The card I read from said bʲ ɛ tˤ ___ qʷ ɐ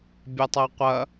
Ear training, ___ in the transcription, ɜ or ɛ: ɜ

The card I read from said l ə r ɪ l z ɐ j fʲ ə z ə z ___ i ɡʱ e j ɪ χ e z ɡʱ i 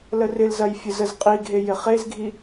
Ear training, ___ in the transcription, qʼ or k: qʼ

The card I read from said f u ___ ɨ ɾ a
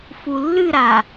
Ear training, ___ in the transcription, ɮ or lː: lː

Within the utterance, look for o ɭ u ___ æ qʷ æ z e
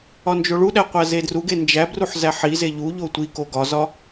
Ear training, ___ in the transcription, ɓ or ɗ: ɗ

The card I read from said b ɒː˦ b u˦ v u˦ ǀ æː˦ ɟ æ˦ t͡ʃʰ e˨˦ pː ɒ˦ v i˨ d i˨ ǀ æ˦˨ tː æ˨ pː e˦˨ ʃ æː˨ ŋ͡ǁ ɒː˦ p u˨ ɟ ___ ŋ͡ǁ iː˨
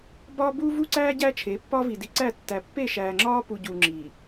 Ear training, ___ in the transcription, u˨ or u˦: u˨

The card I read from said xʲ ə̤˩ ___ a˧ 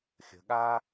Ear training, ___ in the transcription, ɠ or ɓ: ɠ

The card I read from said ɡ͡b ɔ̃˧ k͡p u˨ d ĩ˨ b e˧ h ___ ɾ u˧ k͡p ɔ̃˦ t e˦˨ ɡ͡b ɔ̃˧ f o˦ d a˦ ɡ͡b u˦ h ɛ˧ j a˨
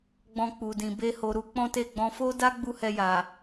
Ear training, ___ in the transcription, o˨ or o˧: o˨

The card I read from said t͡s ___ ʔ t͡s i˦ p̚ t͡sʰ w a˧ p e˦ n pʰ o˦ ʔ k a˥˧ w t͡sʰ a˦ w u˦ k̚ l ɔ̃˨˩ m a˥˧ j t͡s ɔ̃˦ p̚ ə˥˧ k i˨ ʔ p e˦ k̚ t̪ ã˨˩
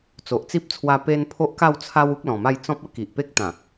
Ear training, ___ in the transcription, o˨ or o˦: o˨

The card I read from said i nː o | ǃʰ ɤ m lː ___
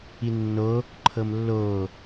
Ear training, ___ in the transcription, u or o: o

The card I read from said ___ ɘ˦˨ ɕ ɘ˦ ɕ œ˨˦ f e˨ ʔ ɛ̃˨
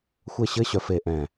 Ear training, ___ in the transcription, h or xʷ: xʷ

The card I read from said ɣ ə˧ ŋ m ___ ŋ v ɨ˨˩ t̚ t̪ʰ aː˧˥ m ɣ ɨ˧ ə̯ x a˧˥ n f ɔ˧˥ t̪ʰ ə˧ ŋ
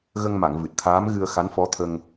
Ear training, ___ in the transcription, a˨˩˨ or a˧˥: a˨˩˨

